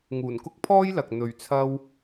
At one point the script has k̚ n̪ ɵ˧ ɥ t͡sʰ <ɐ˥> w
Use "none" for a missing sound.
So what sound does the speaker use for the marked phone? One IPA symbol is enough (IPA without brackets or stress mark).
ɐ˥